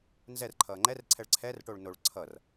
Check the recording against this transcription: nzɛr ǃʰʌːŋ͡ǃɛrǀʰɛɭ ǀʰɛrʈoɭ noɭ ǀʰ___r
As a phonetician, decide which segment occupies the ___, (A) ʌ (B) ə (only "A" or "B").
A